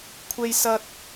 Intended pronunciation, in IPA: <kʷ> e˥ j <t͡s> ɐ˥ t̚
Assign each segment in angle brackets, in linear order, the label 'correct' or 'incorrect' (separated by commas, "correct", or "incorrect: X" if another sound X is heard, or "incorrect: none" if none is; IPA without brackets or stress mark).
incorrect: kʷʰ, incorrect: s